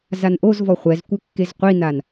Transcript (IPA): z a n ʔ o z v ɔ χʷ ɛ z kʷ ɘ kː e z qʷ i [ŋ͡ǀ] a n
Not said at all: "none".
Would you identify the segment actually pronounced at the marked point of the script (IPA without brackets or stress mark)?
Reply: n